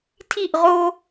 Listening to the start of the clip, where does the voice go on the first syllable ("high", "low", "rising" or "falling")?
falling